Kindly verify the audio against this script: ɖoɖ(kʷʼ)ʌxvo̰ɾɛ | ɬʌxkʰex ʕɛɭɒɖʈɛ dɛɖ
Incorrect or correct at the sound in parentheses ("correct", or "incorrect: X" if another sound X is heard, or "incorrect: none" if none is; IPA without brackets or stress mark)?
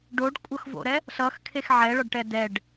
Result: correct